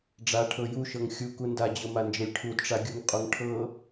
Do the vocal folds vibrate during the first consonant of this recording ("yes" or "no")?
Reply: yes